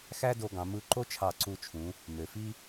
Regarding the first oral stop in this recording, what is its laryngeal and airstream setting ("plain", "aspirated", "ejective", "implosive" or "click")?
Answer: plain